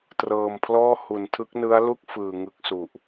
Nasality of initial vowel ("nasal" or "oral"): oral